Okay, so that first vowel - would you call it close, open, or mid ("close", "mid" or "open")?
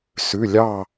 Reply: close